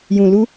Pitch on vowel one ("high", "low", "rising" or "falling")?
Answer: low